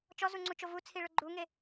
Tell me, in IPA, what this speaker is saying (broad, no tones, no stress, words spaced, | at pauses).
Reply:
t͡ʃɔzuŋ͡ǀut͡ʃo vut͡sʰiɭʊ ɡ͡ǃuŋe